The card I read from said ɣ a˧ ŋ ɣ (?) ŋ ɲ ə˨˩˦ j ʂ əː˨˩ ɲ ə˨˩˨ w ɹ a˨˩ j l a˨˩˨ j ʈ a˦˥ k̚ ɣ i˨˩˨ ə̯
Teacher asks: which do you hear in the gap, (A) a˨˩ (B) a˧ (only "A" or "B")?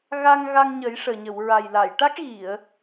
B